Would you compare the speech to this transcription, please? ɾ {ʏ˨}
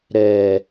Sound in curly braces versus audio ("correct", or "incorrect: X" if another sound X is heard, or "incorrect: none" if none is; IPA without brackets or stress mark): incorrect: ɛ˨